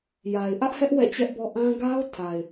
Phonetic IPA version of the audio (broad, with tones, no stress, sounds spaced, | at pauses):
j a˨ ɪ̯ ʔ ä˦ ʔ h ɛ˦ ʔ w ɛ̰˦˨ t͡ɕ ɛ˦ ʔ b ɔ˦ ʔ ã˦ ɡ a˦ ʊ̯ tʰ a˨ ɪ̯